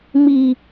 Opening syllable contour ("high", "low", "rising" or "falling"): low